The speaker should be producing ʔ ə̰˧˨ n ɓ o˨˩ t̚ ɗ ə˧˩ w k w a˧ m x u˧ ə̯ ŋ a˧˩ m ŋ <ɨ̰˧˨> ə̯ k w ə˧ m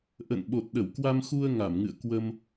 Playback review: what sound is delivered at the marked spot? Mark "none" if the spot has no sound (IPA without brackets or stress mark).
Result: ɨ̰˧˨